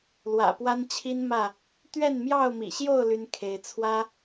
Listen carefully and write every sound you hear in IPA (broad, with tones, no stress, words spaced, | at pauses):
lwä̰˨˩pwa˦nt͡ɕʰi˦n mä˥˨ | t̪ɥɛ˥˨nmjɑ˥˨ʊ̯mḭ˨˩ɕjo˥˨ʊ̯ ly˦nkʰe˨˦ɪ̯ t͡sʰwä˦